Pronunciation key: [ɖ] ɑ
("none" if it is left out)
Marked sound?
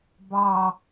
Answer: b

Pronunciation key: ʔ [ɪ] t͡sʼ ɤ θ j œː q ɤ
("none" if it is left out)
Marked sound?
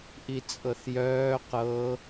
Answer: i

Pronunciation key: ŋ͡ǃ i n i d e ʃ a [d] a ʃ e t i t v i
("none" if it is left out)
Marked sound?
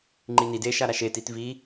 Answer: ɾ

